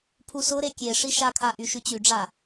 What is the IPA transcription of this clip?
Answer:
pʰusʊɾe kʲe ʂiʃakʰa ʔyʃyt͡ɕyɖ͡ʐa

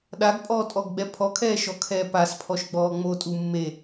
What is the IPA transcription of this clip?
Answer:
ɗaɡpʼɔːtʼɔɡɡ͡bɛ pʰɔkʰɛːʃɔkʰɛː paspʰɔʃɡ͡bɔː ŋ͡motʼu mːe

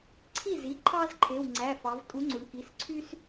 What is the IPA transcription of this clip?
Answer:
ǀʰi˥˩zi˩˧˩ǃʰɑ˦z ǃʰe˩˧˩wŋ͡ǀæ˩˧˩fɑ˩˧v tʼu˨˥ŋ͡ǀu˩˧ɳ ki˩˧˩sǀʰy˦s

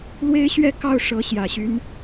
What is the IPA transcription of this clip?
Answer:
lwe˥ɪ̯ɕɥɛ˥kɑ˥˩ʊ̯ ʂɤ˧˥ɕjä˨˩ɕy˧˥n

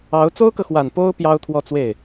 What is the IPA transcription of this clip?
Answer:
ɑ˧˥ʊ̯ t͡so˥ʊ̯kɤ˨xwa˨˩n po˥ʊ̯ pjɑ˥ʊ̯t̪ʰwɔ˥˧t͡swe˥˩ɪ̯

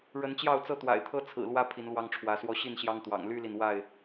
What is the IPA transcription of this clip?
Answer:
ɻə˨˦nt͡ɕjɑ˥˨ʊ̯t͡sɤ˥˨ t̪wa̰˨˩ɪ̯t̪ʰɤ˦t͡sʰɹ̩˨˩lwä˦ pʰi˨˦nlwɑ˦ŋʈ͡ʂʰwä˨˦swɔ˦ ɕi˥˨nɕjɑ˦ŋt̪wɑ̰˨˩ŋ ly˦li˨n wa˥˨ɪ̯

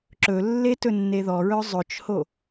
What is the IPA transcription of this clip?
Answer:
ǁɵlːe tɵnːeðɔɹœ zˤɵt͡ʃho

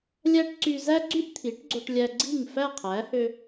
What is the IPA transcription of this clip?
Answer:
lʲæ˥ʈ ǀy˧zæ˥ɡ͡ǀy˥ʔ t̪ʰi˩˥ʈɡ͡ǀo˧ʈ lʲæ˧ɡ͡ǀi˥˩ŋ fæ˥˩qʰæ˩˥hø˧

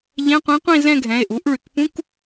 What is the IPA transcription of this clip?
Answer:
ʎɛ̃˧˥˧qʷĩ˧˥ qʷĩ˥˧ zɛ̃˥˧ɡʱɛ̃˩˧˩e̯ ʔu˩˥ʔɭy˩k pũ˧˥˧k

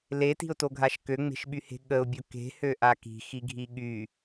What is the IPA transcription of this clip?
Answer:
leti̤ʊ̯toɡʱaʃ køŋ͡me̤ʃɓyhe̤ ɠəʊ̯bʲo ke̤høʔa ki̤xiɡʱi ɠy

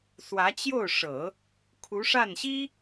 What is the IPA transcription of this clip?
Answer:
swä˧˥t͡ɕjo˥˩ʊ̯ʂɤ˨˩˦ | kʰu˧˥ʂa˥˩nɕi˥

